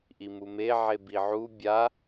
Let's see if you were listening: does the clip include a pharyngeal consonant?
yes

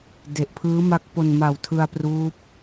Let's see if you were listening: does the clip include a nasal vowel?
no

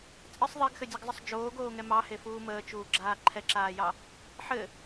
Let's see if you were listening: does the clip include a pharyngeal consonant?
yes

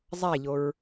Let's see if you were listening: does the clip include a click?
no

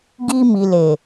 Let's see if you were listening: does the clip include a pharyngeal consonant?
no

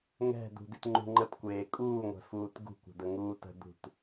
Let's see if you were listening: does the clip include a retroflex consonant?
no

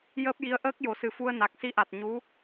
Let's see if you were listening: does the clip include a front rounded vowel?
no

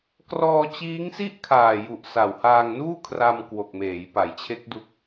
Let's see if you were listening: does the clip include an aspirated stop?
yes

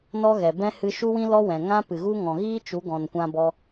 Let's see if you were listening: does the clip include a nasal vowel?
yes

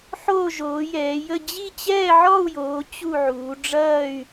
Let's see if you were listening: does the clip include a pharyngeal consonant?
yes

